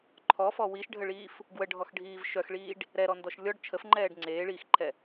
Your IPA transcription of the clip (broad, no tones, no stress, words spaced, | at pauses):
ǃʰɔfɔ wiʃɖʱəɭiːf | ɡwəɖʱɔxɖʱiːv ʃœxɭiːɖ | ɾɛɾɔndɔʃ lʲɔɖ t͡ʃʰəfŋ͡ǃɛːɖ ŋ͡ǀeːɭiːxǃʰɛ